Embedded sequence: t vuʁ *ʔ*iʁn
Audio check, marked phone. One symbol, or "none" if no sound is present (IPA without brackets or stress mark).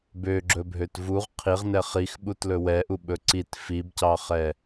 qʰ